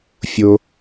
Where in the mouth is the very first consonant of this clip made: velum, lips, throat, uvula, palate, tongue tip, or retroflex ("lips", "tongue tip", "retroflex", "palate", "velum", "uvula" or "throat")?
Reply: lips